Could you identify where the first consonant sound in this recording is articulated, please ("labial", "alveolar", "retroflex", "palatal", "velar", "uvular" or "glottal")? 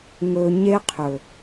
velar